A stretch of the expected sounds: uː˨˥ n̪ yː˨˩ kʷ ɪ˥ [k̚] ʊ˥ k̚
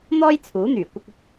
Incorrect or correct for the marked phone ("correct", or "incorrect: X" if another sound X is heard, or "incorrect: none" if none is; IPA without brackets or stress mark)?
correct